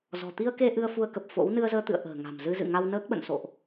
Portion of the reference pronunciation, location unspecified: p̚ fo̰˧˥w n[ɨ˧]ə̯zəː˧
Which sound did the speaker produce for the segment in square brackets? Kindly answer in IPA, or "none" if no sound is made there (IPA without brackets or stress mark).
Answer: ɨ˧